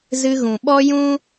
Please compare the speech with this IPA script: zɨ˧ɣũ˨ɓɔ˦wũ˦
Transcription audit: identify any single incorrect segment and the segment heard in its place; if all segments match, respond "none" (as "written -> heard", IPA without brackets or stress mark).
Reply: w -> j